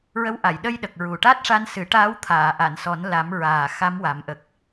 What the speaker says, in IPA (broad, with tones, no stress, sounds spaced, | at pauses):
ɹ ə˧˥ w ʔ a˨˩˨ j ɗ ə˧ j ɗ ə˨˩ k̚ ɹ u˨˩ ʈ a˦˥ t̚ ʂ a˧ n s ɨ˨˩˦ ʈ aː˧˥ w t̪ʰ aː˨˩˨ ʔ a˨˩˨ n s ɔ˨˩˦ n l a˨˩˦ m ɹ aː˨˩ x a˧˥ m w a˨˩˦ m ʔ ə˨˩ k̚